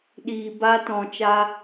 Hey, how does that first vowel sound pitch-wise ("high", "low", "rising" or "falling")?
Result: low